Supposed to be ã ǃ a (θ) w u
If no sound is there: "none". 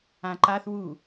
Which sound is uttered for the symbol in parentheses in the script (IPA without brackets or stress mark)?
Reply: θ